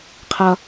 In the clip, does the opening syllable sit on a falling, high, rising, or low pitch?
high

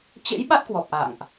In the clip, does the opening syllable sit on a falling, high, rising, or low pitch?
rising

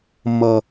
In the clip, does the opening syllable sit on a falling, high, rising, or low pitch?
high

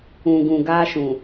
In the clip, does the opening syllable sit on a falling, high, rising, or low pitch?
low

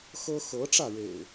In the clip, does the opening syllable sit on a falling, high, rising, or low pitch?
high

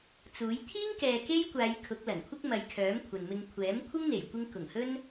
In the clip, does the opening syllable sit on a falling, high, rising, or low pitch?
rising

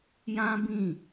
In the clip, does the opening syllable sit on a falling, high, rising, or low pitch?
high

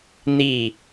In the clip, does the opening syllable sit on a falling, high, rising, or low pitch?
falling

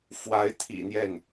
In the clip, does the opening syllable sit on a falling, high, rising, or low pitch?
rising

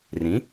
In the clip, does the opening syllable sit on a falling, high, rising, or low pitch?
rising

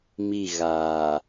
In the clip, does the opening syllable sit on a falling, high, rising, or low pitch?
falling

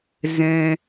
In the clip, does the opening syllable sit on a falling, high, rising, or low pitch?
high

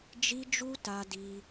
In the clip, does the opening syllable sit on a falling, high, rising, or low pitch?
high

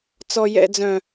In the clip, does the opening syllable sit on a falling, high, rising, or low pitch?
low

